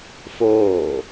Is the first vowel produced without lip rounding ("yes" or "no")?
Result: no